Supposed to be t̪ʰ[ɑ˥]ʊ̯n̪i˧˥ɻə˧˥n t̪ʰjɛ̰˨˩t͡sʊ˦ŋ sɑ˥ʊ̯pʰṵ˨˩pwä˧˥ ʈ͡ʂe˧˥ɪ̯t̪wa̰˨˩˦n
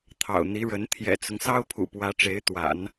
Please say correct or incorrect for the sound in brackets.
incorrect